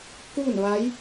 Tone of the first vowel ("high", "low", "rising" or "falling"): falling